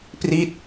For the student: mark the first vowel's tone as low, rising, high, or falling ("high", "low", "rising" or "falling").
falling